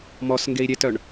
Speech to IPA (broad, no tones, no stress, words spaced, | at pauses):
mɔsŋɡei̯ ɾʲetœɳ